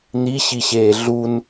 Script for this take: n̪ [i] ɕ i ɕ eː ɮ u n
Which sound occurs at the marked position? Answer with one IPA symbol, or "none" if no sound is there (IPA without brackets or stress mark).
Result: i